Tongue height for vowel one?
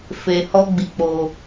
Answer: mid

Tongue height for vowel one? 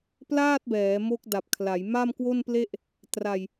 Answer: low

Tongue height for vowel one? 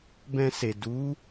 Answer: mid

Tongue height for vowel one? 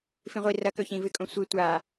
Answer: high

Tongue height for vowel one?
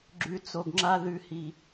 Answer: high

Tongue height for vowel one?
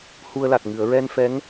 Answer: high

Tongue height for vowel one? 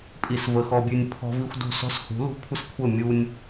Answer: high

